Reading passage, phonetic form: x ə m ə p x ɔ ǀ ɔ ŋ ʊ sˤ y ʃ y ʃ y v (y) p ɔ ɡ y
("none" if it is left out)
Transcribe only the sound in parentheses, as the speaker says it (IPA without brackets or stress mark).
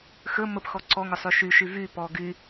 y